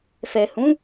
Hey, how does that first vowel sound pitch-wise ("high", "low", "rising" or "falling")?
low